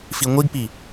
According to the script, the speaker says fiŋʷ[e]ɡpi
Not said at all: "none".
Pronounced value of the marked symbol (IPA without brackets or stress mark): i